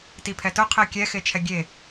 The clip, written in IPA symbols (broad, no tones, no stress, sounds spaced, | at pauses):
t i pʰ ɛ t ʊ qʰ e kʲ ɛ x e t͡ʃʰ ɛ ɡʲ e